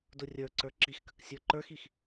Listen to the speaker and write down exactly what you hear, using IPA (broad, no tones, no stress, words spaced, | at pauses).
dʊrʲə˞ǀə˞ ǁixkək sʲə˞ǃə˞xix